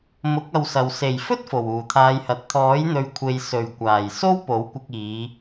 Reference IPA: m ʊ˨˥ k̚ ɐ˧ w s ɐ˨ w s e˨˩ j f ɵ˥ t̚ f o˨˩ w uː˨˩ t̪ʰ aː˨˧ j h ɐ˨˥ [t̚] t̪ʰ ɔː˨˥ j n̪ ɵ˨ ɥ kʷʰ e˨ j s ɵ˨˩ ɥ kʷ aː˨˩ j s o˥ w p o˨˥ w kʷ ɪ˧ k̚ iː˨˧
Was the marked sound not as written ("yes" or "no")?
no